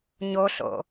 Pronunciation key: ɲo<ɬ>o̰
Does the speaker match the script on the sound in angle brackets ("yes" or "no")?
yes